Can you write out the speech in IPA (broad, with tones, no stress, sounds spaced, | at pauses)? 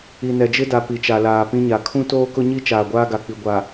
i˨ n ɛ˨ d͡ʒ ɪ˦ d a˨ p i˨ t͡ʃ a˨ l aː˨ p ĩ˦ ɲ a˨ kʰ ũ˦ t oː˦ k ʊ˦ ɲ i˦ t͡ʃ aː˨ ɡʷ aː˦ ɡ a˨ k͡p i˨ ɡʷ a˨